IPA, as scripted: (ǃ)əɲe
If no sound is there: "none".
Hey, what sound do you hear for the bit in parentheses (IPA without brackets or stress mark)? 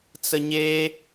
t͡s